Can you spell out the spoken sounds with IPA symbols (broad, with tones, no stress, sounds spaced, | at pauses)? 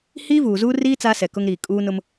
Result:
h iː˦ v uː˨ z uː˦ r iː˦ t͡s aː˦ s ɛ˨ k ʊ˦ ŋ ɾ iː˨ kʼ uː˦ n ʊ˦ m